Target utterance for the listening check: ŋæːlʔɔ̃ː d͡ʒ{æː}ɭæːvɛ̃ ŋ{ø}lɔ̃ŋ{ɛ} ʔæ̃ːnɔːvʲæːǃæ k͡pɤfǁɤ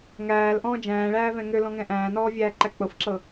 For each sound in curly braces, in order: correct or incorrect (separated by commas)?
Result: incorrect, correct, incorrect